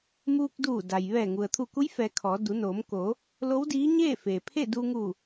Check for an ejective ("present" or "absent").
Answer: absent